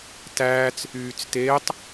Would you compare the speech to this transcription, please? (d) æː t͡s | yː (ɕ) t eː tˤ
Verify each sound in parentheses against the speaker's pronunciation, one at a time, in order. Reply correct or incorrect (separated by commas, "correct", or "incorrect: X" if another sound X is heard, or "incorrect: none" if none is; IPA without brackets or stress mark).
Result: incorrect: t, incorrect: t͡s